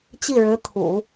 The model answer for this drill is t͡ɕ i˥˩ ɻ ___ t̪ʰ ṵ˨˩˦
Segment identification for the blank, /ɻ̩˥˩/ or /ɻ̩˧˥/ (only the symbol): ɻ̩˧˥